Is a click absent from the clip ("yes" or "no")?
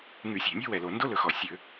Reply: yes